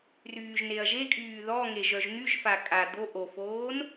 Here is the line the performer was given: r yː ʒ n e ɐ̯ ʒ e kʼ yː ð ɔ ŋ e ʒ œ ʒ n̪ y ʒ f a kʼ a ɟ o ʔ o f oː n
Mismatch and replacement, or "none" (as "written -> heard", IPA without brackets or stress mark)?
ɟ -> d̪